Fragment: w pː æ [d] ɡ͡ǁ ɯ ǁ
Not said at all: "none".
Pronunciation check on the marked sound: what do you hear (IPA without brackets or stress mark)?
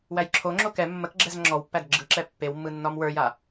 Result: d